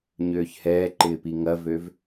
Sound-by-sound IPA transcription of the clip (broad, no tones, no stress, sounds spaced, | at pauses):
ɲ øː ç h ɛː ǃ ɪː p i ŋ ɐ v ø v